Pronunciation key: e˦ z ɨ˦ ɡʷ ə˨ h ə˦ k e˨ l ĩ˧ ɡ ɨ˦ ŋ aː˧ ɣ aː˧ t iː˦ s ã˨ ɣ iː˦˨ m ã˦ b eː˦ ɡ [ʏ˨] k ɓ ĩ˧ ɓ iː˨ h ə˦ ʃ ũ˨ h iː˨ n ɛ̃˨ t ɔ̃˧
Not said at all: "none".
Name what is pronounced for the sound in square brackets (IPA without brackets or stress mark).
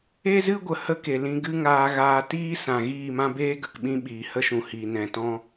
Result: ə˨